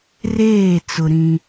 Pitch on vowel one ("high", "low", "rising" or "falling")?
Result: falling